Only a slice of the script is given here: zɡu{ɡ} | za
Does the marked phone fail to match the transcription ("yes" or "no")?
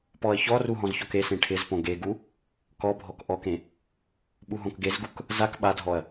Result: yes